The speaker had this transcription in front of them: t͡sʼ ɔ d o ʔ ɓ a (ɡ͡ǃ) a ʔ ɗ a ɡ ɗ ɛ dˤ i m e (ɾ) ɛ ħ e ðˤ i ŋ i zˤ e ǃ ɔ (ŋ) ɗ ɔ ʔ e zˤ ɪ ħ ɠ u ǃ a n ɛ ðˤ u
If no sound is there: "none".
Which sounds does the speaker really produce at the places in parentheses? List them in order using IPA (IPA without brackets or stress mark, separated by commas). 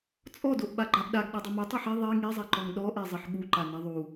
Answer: ɡ͡ǃ, tˤ, ŋ